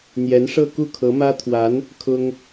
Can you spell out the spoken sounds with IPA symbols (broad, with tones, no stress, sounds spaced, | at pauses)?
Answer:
n̪ j ɛ˧˥ n ʂ ɤ˥˧ k u˥˩ kʰ ɤ˧˥ m ä˥ t̪ʰ w a˧˥ n | kʰ ʊ˥ ŋ